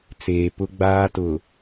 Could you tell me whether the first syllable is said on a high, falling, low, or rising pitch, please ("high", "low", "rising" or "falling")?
low